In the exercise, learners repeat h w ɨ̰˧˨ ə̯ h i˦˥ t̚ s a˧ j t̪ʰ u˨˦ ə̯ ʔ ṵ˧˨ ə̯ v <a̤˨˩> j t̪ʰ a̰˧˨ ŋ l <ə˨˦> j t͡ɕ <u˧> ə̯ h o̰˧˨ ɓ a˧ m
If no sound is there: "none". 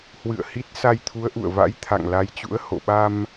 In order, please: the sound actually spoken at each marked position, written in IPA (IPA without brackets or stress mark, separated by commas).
a̰˧˥, a˨˦, ṵ˧˥